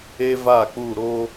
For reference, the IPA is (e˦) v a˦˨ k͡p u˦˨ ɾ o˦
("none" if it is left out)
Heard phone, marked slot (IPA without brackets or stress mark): e˦